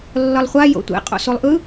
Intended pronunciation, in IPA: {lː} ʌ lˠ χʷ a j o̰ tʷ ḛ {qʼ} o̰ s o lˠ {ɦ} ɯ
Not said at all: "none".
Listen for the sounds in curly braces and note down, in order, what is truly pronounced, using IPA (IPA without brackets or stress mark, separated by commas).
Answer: lː, qʼ, ʔ